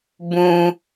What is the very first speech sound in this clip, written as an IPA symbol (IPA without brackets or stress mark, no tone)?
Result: b